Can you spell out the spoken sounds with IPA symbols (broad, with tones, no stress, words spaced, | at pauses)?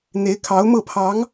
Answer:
n̪e˧˥ɪ̯kʰɑ˧˥ʊ̯mɤ˥˩pʰɑ˧˥ŋ